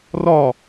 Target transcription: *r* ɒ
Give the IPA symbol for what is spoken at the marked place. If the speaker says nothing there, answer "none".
r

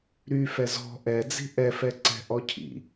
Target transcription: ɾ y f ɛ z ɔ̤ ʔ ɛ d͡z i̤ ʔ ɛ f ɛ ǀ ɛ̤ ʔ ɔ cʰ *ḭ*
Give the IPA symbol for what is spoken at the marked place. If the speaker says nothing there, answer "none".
ḭ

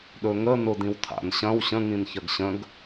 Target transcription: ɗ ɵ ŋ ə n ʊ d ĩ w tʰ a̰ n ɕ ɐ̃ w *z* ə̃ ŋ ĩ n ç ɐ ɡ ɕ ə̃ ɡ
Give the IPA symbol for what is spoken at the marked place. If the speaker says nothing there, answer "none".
ɕ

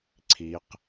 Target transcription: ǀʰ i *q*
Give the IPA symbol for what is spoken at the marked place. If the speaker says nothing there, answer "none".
q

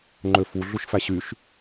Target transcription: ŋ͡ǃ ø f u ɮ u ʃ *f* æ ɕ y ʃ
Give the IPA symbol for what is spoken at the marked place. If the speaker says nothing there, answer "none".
f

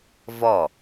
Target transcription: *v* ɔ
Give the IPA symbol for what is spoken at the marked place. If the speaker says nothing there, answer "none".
v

